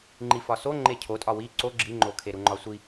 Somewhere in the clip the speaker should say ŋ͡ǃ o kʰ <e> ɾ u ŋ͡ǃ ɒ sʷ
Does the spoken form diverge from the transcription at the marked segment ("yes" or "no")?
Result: no